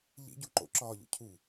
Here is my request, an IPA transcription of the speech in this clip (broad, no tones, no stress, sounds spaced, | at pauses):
ʎ ḭ ɟ u ǃ o̰ ǁ ɒː ʎ o̰ cʰ u